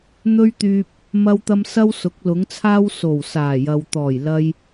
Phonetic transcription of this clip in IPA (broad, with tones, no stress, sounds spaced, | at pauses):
n̪ ɵ˧ ɥ t̪ yː˨ p̚ | m ɐ˧ w t̪ ɐ˧ m s ɐ˥ w s ʊ˨˥ k̚ l ʊ˨˥ ŋ t͡sʰ aː˥ w s o˨˩ w s aː˨˩ j ɐ˨ w t̪ ɔː˨˩ j l ɐ˧ j